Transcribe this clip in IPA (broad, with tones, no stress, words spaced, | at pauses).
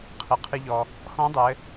qʰɘ˩qʰɨ˧ʎɔ˩ | xɔ̃˧˥dˤɘ˩˧